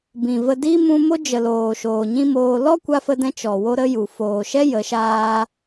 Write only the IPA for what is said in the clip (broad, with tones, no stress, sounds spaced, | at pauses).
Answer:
b ĩ˨ v ə˧ d i˦ m ũ˧ m o˦ d͡ʒ ə˨ l oː˨ ʃ oː˨ ɲ ĩ˦ m oː˧ l ɔ˦ kʷ a˧ f ə˧ d ɛ̃˧ t͡ʃ ɔ˨ w o˦ ɾ ə˦ j u˨ f oː˨ ʃ ɛ˦ j ə˨˦ ʃ aː˦